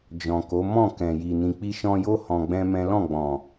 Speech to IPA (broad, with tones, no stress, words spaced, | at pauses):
d͡ʒɔ̃˨ko˨˦ mɔ̃˦˨kɛ̃˨ji˨ nĩ˨k͡pi˧ʃɔ̃˧jo˦ hɔ̃˧ɡ͡bɛ̃˦mɛ̃˦ lɔ̃˦˨ ɡ͡bɔ̃˨